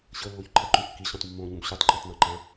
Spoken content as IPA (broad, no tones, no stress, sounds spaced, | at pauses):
ɕ ɤ lː o ç ǃʰ a ǃ ũ kː i ɕ õ tˤ mː õː ɲ ũ b ɕ u tˤ ǃ ɔ tˤ n ã ǃ ã